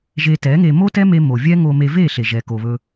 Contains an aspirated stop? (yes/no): no